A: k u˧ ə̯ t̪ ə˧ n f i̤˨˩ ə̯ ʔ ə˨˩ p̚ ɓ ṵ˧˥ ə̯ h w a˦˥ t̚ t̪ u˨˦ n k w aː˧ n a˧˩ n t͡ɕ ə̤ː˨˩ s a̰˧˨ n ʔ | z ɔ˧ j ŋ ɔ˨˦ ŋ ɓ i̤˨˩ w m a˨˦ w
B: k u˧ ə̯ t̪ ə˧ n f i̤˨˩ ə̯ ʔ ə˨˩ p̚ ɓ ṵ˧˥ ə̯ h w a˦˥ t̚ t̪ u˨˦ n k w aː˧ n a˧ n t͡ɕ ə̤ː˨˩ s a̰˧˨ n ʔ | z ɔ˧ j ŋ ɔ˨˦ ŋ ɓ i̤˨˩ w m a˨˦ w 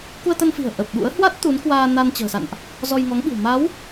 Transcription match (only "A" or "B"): B